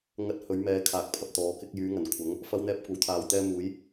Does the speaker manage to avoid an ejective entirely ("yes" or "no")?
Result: yes